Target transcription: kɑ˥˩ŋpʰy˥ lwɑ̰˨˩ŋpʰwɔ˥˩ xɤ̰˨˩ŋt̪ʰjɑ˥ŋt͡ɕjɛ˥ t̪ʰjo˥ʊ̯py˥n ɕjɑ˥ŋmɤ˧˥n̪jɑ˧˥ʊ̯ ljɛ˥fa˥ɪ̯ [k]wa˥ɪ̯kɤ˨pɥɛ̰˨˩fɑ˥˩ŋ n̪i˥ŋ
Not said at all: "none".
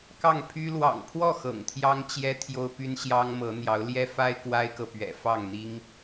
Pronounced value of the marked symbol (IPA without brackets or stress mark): k